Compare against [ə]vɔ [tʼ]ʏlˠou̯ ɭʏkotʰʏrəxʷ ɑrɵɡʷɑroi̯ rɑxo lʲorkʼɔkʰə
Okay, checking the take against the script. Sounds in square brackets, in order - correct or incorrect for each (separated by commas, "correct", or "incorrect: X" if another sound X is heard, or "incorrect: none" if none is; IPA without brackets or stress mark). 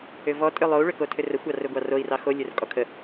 incorrect: ʏ, correct